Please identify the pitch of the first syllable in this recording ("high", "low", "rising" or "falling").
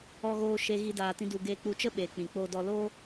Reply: high